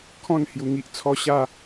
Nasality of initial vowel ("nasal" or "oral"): nasal